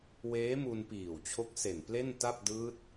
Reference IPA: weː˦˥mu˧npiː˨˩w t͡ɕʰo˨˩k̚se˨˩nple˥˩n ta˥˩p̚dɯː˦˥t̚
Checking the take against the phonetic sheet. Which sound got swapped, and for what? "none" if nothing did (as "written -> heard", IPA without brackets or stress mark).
o˨˩ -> o˦˥